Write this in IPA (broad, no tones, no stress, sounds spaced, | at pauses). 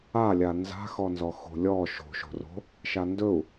a lʲ a n z a̤ x ɔ n z ɔ x o̤ lʲ ɔ ʃ o̤ ʃ o̤ r o̤ | ʃ a n d ɵ u̯